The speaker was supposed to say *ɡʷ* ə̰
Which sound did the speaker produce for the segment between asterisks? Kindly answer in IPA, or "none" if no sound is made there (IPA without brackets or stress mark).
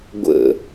ɡʷ